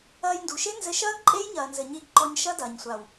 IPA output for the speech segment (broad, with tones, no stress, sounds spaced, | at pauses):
ɐː˧ j n d u˨ ʃ e˦ n z ɘ˧ ʃ ɐː˦ ɡ ǃʼ e˦ j ɲ ɐː˧ n z ɘ˧ ɲ i˧ ɡ ǃ ɔ˧ ɲ ʃ ɐ˦ d ɐː˨ ɲ sʷ a˨ w